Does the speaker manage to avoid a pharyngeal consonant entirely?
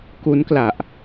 yes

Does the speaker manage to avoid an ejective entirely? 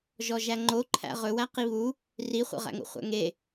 yes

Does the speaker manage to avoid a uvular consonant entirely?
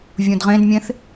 no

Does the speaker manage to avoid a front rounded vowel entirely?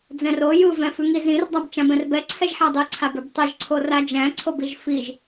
yes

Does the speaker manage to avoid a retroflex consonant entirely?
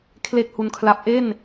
yes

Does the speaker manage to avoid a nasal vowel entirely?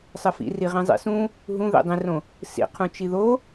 no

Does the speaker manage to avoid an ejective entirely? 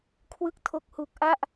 yes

